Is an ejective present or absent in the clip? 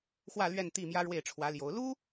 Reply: absent